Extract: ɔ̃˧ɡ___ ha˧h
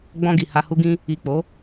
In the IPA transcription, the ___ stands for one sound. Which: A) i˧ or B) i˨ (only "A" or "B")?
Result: B